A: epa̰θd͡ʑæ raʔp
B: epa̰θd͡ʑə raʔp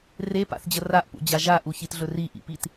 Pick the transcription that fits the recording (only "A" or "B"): B